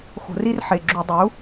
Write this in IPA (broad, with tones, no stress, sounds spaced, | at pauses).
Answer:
x o̤˧˩˧ r i˦ r ħ e˩˧˩ ɡ͡ǁ u˧˩˧ dˤ u˩˥